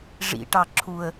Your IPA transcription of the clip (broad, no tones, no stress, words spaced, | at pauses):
ʐḭʈɑ ǁʰuə̯